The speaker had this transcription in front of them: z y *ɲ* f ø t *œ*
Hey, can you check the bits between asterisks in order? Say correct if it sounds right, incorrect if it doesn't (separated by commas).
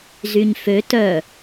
correct, correct